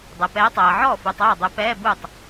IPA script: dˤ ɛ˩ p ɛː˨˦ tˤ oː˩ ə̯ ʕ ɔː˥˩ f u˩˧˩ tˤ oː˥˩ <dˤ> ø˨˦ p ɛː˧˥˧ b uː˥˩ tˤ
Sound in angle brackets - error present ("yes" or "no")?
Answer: no